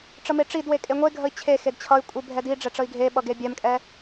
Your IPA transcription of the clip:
ʈ͡ʂ ə m e ʈ͡ʂ i d w e kʼ e ŋʷ e ɡʱ ə i̯ t͡ɕʰ e x e d t͡ɕʰ ʌ y̯ kʷʼ i bʱ ɛ d i ɖ͡ʐ ɛ ʈ͡ʂ ə i̯ ɡʱ e ɓ ʌ ɡ e bʲ ɛ m kʼ ɛ

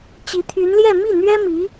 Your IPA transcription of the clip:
t͡ɕ i˧˥ t̪ʰ y˧˥ n l j ɛ˥˧ m i˥˩ n̪ ɥ ɛ˥ m i˧˥

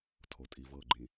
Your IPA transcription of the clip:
tʰ o tʼ i v ɤ ɡ͡ǃ ĩ

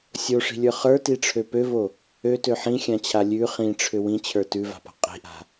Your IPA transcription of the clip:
sʲ o ʂ i̤ lʲ ə˞ χ ə˞ t i ʈ͡ʂʰ ø p ø v o | ø t ø ħ ĩ xʲ ã t͡ɕʰ a lʲ ʉ χ ĩ ʈ͡ʂʰ ʏ w ĩ t͡ɕʰ ə˞ t ʉ v a̤ p a̤ qʼ i̤ ʔ a̤

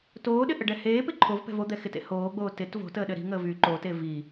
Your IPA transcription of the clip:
t oː ɗ ɪ ʔ ə ɖ ɛ h eː p ɪ ǃʰ o v p ɛ̤ v o d̪ ɛ x ɪ t ḛ h oː ɡ͡b oː t ɪ t v o̤ t əː ɗ ɘ ɾ i̤ ŋ əː v y ǃ o t e v i

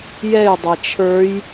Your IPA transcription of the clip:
j ɛ j dˤ e t͡ʃʰ ə˞ j

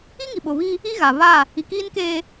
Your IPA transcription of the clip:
i˦ ŋ i˨ ɓ ʊ˨ β i˦ | i˦ ɣ a˨ β a˦˨ | i˨ k iː˦ n k eː˦

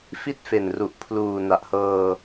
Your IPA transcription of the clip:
f i˥˩ t̚ f e˨˩ n r u˨˩ ʔ pʰ l uː˨˩ n a˨˩ ʔ h ɤː˧

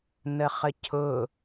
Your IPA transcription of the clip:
n ə χ ə cʰ ʊ

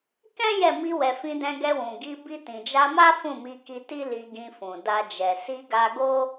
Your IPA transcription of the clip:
k ɛ̃˦ j ɛ˦˨ m i˧ w ɛ˨ f ĩ˧ d ɛ̃˧ ɡ ɛ˧ w ũ˨ ɡ i˧ b i˧ t ĩ˨ d͡ʒ a˧ m a˦ f ũ˦˨ m i˧ k i˧ t i˦ l i˧ ɡ ĩ˧ f ũ˨ d a˧ d͡ʒ ɛ˨ s i˧ ɡ a˧ ɡ o˦

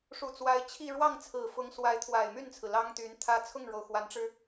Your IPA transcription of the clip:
ʂ u˨˩ t͡s w a˧˥ ɪ̯ t͡ɕʰ i˥˧ ɻ w ɑ˥˩ ŋ t͡sʰ ɹ̩˨˩ f ʊ˧˥ ŋ s w a˧˥ ɪ̯ t̪ʰ w a˨˩ ɪ̯ m y˥˩ n t͡sʰ ɹ̩˩ l ɑ˥ ŋ t̪ y˧˥ n t̪ʰ ä˥ t͡sʰ ʊ˥˩ ŋ ɻ o˩ ʊ̯ x w a˧˥ n ʈ͡ʂ ɻ̩˧

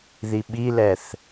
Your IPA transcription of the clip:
ð i ɓ i l ɛ θ

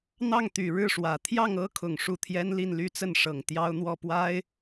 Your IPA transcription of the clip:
n̪ ɑ˥˩ ŋ t̪ y˨˩ ɻ ɻ̩˥˩ ʂ w ä˨˩ t̪ʰ j ɑ˥˩ ŋ ɤ˥ kʰ ʊ˨˩ ŋ ʂ u˥˩ t̪ʰ j ɛ˥ n l i˥˩ n l y˥ t͡s ə˥˩ n ʂ ɤ˨˩ ŋ t̪ j ɑ˥ ʊ̯ n̪ w ɔ˥˩ p w a˥ ɪ̯

